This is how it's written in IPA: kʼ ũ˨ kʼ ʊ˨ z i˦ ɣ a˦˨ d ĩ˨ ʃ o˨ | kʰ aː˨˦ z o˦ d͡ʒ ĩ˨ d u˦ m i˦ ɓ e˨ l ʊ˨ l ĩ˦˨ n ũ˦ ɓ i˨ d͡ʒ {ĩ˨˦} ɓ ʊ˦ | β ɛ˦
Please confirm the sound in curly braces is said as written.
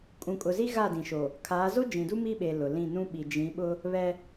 yes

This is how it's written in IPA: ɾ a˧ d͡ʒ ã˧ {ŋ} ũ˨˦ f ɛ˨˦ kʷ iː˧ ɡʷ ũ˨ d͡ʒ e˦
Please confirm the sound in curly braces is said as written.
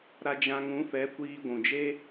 yes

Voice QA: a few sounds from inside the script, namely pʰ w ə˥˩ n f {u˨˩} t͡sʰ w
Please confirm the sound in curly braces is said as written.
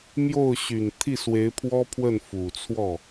yes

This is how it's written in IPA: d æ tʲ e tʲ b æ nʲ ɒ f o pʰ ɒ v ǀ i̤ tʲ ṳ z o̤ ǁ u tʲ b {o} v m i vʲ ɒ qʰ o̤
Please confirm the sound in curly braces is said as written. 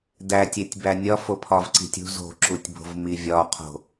no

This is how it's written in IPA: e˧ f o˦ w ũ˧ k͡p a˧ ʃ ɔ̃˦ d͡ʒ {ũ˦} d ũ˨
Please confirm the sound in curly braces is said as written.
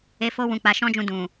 no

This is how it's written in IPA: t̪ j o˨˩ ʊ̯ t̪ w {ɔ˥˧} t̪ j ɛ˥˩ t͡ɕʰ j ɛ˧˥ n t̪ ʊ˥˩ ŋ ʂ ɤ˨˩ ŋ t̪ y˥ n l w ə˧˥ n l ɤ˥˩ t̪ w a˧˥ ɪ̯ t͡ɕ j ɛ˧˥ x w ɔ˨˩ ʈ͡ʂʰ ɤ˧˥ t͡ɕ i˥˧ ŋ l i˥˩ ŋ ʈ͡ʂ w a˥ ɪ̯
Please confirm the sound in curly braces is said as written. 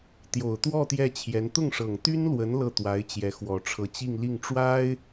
yes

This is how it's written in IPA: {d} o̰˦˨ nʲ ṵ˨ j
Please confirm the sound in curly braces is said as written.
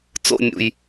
no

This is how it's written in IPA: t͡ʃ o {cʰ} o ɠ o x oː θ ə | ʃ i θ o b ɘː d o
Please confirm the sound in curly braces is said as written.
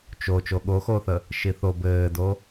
no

